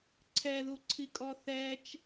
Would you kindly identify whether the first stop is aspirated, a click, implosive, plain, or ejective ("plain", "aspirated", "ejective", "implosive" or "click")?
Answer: click